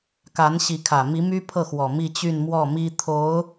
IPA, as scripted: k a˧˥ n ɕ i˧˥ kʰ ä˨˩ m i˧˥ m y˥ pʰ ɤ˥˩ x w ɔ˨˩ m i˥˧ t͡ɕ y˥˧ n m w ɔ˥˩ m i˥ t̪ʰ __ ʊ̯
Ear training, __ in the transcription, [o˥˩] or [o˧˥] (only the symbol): o˧˥